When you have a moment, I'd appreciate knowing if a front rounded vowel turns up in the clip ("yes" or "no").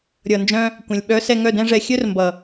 yes